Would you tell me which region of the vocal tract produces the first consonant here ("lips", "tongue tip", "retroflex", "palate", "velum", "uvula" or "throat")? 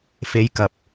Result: lips